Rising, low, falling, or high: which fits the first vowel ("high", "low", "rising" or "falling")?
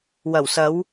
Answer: low